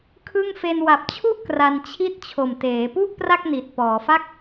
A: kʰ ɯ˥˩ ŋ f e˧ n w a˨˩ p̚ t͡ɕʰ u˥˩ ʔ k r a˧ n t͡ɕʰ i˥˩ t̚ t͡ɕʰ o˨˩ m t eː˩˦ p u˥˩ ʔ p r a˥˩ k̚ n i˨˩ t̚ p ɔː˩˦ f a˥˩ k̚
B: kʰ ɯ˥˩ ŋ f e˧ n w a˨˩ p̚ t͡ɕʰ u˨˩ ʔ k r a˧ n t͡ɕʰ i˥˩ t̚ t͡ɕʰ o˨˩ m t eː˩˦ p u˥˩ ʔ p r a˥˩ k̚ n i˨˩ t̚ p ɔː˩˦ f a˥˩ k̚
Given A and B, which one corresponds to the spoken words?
A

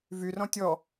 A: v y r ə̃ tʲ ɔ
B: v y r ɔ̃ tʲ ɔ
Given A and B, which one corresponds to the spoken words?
B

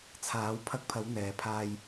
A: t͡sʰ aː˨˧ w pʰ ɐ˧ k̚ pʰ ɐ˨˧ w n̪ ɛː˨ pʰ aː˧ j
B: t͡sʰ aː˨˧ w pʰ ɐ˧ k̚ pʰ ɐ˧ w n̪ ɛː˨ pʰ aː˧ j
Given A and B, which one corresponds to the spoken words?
A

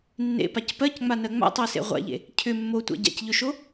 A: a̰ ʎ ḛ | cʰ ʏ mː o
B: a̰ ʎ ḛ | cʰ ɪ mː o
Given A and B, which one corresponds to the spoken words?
A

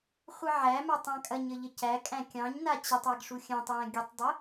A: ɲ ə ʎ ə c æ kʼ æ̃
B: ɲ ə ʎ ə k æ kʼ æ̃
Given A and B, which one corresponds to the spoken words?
A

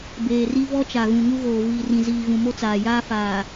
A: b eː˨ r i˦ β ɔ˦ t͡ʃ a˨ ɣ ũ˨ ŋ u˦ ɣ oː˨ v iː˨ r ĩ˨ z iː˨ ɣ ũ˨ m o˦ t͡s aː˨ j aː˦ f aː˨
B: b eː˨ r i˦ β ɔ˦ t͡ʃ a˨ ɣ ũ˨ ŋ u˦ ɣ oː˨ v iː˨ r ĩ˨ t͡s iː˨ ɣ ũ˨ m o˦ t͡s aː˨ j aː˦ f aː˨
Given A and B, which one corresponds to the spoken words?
A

